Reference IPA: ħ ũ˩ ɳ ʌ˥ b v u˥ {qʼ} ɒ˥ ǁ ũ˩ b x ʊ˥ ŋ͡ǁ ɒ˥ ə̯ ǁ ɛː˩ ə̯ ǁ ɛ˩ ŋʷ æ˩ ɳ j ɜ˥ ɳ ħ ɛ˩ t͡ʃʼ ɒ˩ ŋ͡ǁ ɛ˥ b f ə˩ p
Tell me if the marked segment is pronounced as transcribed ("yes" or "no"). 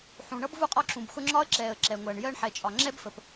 yes